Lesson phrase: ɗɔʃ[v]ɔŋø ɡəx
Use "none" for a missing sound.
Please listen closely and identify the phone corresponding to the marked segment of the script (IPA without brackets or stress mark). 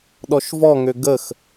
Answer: v